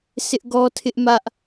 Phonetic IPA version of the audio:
sʰ ɪ˦ ʔ ɡ ɔ˦ tʰ ɪ˦ ʔ m ä˦ ʔ

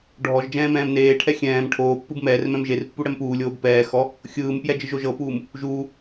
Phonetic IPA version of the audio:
ɖʱ ɔ ʒ d͡ʒ ɛ̃ː m ɛ̃ː m n eː ʈʰ ɛ xʲ ɛ̃ː m ʈʰ oː pː ɯ b m ɛː r m ɛ̃ m ʒ e r pː u ɽ ɛ m p uː lʲ oː b p ɛː x ɔ | xʲ ɯː m p j ɛ d͡ʒ ɯ ʒ o ʒ ɤ p uː m | ʒ uː

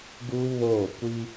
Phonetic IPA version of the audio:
ɡ u˦ β oː˦˨ kʷ i˦

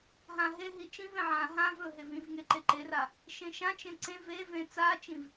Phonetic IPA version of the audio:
ɦ ã ɦ e ɦ i t͡ʃ ĩ v ẽ ʕ ã ɦ ã v ɵ ɦ e v ĩ v ŋ e ǃ e ǃ e r a | ʃ ẽ ʃ ã t͡ʃ ẽ ǀ ẽ v e v ẽ t͡s a t͡ʃ ĩ v

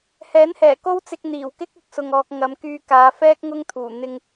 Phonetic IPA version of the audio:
h ɛː˨˥ n h ɛː˨˩ k o˥ w t͡s ɪ˧ k̚ n̪ iː˨˩ w k ɪ˥ k̚ ʊ˨ k̚ s ʊ˨ ŋ ɔː˨ k̚ ŋ ɐ˨˧ m k yː˧ k aː˨˧ f ɛː˥ k̚ ŋ ʊ˥ ŋ t̪ʰ uː˨˩ n̪ ɪ˧ ŋ

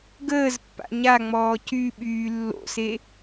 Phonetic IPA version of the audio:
ɡ əː z pː a̰ ɲ a ŋ͡m ɔː c y ɓ yː lː o̰ s e

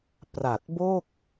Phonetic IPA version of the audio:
p r a˨˩ t̚ b o˥˩ k̚

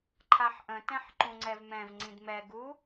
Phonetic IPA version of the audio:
ǃʰ a ħ ʔ ə̃ t ɛ̃ ħ ǃ ũ ŋ͡ǀ ɛ v m ɛ̃ v ŋ͡ǀ ĩ d m ɛ ɡ u

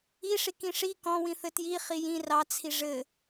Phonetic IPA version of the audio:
i ʂ i k ĩ ʂ i k ɔ̃ w ĩ θ ɘ t j i χ i j ĩ r ɑ t͡sʰ i ʐ ɘ

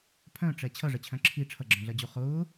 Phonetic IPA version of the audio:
pʰ œ̃ ʈ͡ʂ ɛ t͡ɕʰ ʌ ʐ ə t͡ɕʰ œ̃ ǁʰ i ʈ͡ʂʰ ʌ ɡ͡ǁ œ̃ ɮ ɜ d͡ʑ u χ ʊː

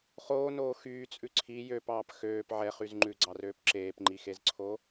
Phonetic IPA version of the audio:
χ oː n oː x yː t͡sʼ ʉ ǀʰ i j ø p ɑː p x øː p ʕ ɛ χ y z ŋ͡ǃ ʉ ɡ͡ǀ ɑ r øː p ǁ eː p ŋ͡ǃ i x e z ǀʰ o

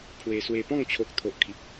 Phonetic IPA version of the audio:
pʰ w e˧ s w e˧ p ɔ̃˥˧ ŋ t͡ɕʰ o˦ k̚ t̪ʰ o˦ ʔ kʰ i˦ p̚

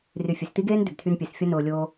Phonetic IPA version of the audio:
r y˨ fʲ ø˨ s t i˦ ɡ eː˦ n d ʏ˨ b tʰ y˧ n pʲ ø˨ s fʲ ɐ˦ n ʊː˨ lʲ oː˧

